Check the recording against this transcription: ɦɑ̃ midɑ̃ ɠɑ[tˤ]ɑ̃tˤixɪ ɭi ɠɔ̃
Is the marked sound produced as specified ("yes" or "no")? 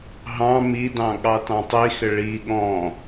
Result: no